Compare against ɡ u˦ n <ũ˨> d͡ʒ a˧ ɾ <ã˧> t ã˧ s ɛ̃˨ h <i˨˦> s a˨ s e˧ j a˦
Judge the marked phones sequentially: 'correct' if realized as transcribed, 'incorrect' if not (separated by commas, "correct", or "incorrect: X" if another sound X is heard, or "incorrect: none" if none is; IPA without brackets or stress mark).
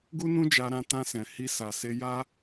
incorrect: ũ˦, correct, incorrect: i˧